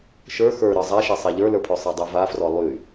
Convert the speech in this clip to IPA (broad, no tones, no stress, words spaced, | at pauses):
ʃə˞ xə˞ ɾə˞zˤaʃɛ sˤaʎə˞lə˞pʰø sˤɛdˤøvafrɔ lˠy